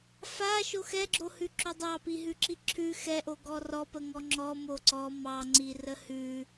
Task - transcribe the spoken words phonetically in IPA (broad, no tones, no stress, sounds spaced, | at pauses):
f a ʃ o x ɛ ɡ͡ǁ o h ʉ ǁ o dˤ ɑ p i ɦ ʉ ǁ i ǁʰ ʉ x ɛ ʔ o ɡ ɔ r ɔ p ə ŋ ɔ ŋ͡ǁ ɔ m o ǀ ɔ m ɑ ŋ͡ǀ i r ə h ʉ